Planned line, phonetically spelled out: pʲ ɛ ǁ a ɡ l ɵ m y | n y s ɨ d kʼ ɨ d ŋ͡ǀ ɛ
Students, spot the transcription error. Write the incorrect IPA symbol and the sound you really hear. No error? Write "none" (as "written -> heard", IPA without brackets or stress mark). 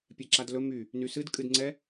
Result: ɡ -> d